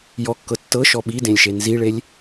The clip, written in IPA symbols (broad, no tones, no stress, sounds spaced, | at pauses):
j ɔ kː ɤ tː ɤ ʃ ɔ ɓ i d ẽ lʲ ʃ e n z i ɭ e lʲ